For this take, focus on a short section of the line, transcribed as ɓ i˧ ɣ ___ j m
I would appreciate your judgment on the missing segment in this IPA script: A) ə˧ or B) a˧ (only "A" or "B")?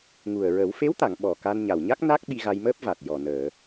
B